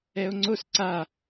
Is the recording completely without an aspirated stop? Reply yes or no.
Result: yes